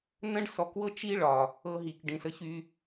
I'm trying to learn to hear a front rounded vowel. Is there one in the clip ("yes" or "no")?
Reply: yes